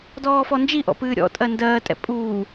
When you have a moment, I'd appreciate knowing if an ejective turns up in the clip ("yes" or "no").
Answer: yes